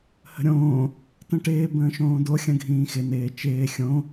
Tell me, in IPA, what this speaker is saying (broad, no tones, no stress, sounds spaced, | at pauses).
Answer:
h ə̤ ɾʲ õː | t ə̃ ʈ ɪː b ə̃ː ʃ õː d o xʲ ə̃ ɡʱ ĩː x ɪ n ɪː t͡ʃ ɪː xʲ õ